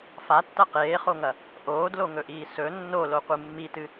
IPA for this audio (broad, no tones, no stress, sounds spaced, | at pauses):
f a tː ɐ q eː χ o ŋ ɐ | ʔ oː d l o ŋ ɵ ʔ iː s ɵ nː o l o qʷ ɨ mː i t ɨ